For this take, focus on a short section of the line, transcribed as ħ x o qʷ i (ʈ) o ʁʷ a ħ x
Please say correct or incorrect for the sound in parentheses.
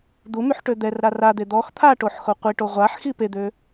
correct